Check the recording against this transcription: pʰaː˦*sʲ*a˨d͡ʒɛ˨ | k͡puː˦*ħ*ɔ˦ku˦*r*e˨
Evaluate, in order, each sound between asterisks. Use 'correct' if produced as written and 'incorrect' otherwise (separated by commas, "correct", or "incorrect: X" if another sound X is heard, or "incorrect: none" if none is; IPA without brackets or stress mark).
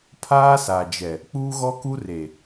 incorrect: s, incorrect: ɣ, correct